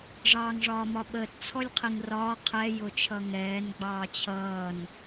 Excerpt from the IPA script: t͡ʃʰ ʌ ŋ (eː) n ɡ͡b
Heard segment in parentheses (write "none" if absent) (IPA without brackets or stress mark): ɛː